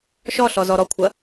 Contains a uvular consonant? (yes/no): no